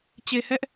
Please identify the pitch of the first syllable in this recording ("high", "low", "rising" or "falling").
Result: low